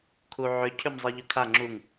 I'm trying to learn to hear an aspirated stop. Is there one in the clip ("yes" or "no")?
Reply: yes